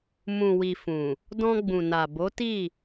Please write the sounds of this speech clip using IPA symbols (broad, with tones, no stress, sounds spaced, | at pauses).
m ũ˨ w i˨ f ũ˨ | d ɔ̃˧ ɡ͡b ũ˨ n a˨ b o˨˦ t i˦˨